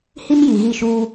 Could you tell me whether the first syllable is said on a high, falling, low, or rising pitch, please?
high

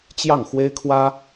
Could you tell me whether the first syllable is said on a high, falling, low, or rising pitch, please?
falling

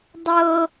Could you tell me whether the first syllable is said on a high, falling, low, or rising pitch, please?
high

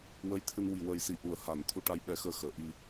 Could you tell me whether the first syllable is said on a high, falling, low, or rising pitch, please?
rising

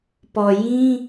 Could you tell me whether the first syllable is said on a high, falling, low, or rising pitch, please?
low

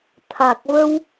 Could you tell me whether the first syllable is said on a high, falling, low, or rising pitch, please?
low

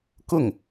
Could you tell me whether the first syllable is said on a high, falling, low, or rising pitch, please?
falling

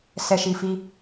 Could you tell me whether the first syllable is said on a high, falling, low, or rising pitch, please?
low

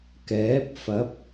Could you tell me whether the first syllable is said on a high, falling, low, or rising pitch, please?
rising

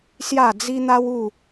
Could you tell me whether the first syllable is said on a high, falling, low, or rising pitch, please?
falling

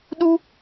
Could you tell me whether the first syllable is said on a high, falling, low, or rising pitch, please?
high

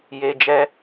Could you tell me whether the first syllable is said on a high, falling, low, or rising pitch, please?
low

